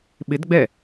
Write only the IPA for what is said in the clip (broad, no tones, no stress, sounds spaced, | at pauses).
ɓ ɪ d ɡ͡b ɛ